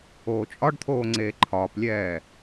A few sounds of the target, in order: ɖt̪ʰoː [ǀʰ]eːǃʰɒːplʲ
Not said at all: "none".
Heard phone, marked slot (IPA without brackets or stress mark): ŋ͡ǀ